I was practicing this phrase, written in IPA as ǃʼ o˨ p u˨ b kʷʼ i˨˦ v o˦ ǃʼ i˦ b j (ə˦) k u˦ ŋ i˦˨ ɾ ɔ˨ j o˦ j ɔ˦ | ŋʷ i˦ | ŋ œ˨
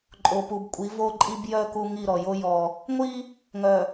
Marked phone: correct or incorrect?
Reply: incorrect